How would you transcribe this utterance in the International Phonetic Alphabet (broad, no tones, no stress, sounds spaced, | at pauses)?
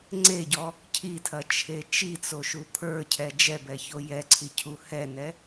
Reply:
ŋ͡ǀ e ɟ ɔ | cʰ i tʰ ɐ t͡ʃʰ e t͡ʃ i t͡s o ʃ u pʰ ə˞ cʰ ɛ d͡ʒ ɛ b ɛ ç o j ɛ ǀʰ i cʰ u h ɛ n ɛ